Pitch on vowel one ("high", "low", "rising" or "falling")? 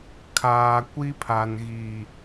low